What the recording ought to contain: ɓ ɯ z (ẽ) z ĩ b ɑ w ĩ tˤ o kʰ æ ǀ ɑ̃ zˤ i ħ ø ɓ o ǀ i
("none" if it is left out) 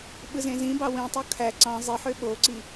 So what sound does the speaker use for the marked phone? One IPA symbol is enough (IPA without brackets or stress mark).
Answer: ẽ